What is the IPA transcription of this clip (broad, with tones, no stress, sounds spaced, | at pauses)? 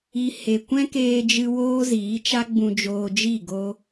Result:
i˧ h e˨ kʷ ɛ̃˦ k eː˧ d͡ʒ ɨ˧ w oː˦ z iː˨˦ t͡ʃ a˦ ɡ͡b ũ˧ d͡ʒ oː˧ d͡ʒ i˦˨ ɡ o˧